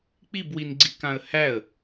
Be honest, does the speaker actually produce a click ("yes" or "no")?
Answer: yes